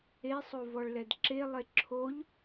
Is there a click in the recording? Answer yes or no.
yes